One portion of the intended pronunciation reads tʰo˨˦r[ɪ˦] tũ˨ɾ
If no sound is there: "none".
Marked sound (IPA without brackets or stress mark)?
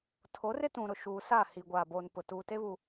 ɪ˦